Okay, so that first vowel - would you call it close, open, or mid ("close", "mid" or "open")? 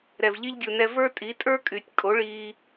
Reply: mid